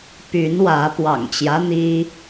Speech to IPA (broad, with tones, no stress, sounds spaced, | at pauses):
p y˨˦ n w ä˨˦ p w ɑ̰˨˩ ŋ t͡ɕ j ä˦ n̪ i˦